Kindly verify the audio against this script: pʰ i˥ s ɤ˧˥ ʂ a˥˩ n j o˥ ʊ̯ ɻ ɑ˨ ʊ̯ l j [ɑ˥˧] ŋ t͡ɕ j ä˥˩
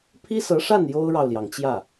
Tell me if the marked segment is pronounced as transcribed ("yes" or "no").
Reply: no